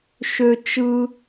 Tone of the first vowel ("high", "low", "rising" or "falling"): high